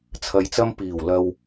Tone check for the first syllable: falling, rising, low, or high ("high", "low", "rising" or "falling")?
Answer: low